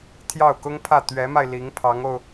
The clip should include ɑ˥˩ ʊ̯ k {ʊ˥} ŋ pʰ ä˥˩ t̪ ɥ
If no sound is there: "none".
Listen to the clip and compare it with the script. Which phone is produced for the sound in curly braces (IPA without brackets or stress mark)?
ʊ˥